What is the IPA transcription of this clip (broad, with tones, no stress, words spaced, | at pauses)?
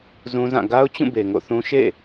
zũ˦zã˦˨ ɡa˦ʊ̯t͡ɕũ˦˨be˨ ŋo̰˦˨θũ˦ ʃḛ˦˨